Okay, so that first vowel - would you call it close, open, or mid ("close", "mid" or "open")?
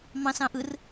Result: open